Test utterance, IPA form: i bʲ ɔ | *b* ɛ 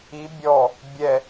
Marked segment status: incorrect: bʲ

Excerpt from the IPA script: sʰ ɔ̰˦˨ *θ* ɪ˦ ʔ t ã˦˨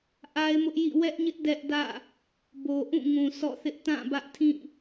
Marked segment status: correct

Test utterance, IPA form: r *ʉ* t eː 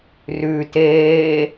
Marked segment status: correct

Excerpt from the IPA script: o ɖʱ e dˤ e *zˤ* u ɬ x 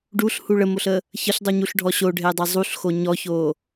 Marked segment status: correct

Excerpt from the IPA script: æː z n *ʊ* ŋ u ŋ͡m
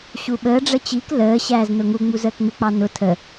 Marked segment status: correct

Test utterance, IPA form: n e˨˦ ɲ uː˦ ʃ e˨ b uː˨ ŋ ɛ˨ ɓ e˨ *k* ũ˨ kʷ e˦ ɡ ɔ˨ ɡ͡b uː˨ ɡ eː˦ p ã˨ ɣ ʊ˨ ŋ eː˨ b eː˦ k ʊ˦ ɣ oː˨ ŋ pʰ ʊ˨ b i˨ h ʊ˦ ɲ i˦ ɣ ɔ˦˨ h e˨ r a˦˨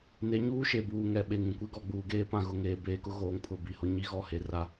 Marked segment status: incorrect: ŋ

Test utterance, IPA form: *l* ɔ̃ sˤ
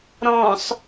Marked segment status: incorrect: ɾ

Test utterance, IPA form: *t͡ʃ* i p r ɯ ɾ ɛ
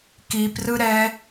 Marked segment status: incorrect: k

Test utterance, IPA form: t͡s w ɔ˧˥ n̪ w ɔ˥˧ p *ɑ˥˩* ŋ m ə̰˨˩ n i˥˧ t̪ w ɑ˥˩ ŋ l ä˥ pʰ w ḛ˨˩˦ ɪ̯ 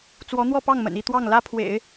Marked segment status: correct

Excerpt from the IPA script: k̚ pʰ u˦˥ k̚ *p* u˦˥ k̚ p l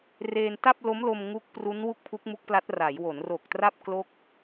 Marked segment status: incorrect: m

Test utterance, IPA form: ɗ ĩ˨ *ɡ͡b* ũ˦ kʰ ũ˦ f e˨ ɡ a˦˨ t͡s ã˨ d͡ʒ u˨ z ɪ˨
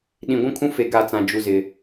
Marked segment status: incorrect: ɡʷ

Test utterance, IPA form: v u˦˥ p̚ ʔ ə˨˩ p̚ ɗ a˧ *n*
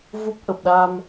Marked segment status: incorrect: m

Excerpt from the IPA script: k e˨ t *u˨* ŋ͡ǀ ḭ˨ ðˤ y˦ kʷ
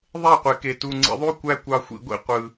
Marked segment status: correct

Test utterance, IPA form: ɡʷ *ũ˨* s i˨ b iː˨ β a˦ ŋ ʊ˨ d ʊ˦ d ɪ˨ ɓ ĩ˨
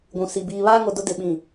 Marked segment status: correct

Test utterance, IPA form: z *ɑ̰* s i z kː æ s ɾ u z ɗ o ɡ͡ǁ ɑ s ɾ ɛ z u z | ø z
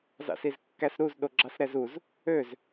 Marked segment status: correct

